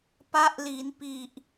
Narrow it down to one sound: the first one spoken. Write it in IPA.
p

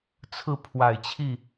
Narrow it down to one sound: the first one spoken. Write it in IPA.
t͡sʰ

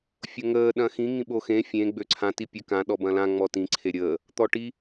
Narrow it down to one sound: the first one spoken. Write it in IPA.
fʲ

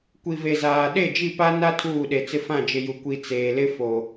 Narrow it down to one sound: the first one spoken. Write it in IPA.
kʷ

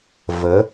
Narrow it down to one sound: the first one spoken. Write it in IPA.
v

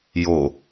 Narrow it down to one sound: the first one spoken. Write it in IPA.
j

